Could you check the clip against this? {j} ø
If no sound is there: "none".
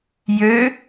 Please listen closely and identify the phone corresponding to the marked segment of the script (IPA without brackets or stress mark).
j